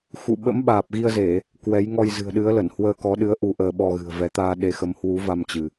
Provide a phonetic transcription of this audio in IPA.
xṵ˧˨ ɓə̰˧˥mɓaː˨˩p̚ɣi˧ə̯ze˧˩˨ | kwɛ˨˦j ŋɔ˧jzɨ̤˨˩ə̯ɗɨ˨˦ə̯lə˧˩n hwəː˧kɔ˨˦ɗɨ˨˦ə̯ ʔu˧ʔəː˧ ɓɔ˧ɣɨ̤˨˩ə̯vɛ˨˦ t̪aː˧ɗe˨˦xə˨˦m hwu˨˦va˧m t͡ɕɨ˧

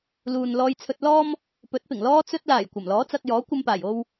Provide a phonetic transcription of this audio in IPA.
luː˨nlɔː˧jt͡sʰɵ˧t̚ lɔː˥m | pɵ˨˥t̚pɪ˨˩ŋ lɔː˧t͡sɵ˧t̚laː˨˩j kʷɐ˨˩mlɔː˨˥t͡sɐ˧k̚ jɔː˨˥kʷɐ˧mpaː˨˩jo˧w

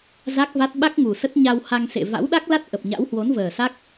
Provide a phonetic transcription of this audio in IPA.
za˦˥k̚va˦˥t̚ ɓa˦˥k̚ ŋu˨˩sə˦˥t̚ ɲa˧wha˧ŋsḛ˧˨ va̰˧˥wɗa˦˥k̚la˦˥t̚ ʔə˨˩p̚ɲa̰˧˥w hwo˨˦nvəː˨˩sa˦˥k̚

